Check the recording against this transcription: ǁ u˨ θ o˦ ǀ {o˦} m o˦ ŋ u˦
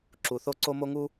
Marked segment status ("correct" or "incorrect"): correct